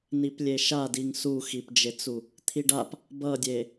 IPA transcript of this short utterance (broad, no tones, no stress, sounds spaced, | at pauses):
n i p lʲ e ʃ a d i ŋ s u x i p d͡ʒ e t͡s u | t̪ʰ i ɖ a p | b ʌ dʲ e